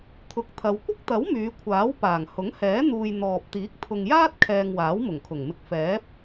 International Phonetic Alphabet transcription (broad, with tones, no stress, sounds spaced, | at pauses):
t̪ʰ ʊ˨ k̚ t̪ʰ ɐ˨˧ w kʷ ɪ˥ k̚ t̪ ɐ˨˥ w m yː˨˧ kʷʰ aː˨˥ w p aː˨˩ ŋ h ʊ˨˥ ŋ h ɛː˨˥ n̪ uː˨ j n̪ ɔː˨ p̚ t̪ iː˨˥ k̚ t̪ʰ ʊ˨ ŋ j aː˥ t̚ kʰ ɛː˨ ŋ w aː˨˥ w m ʊ˨˩ ŋ kʰ ʊ˨˩ ŋ m ɪ˧ k̚ f ɛː˨˥ p̚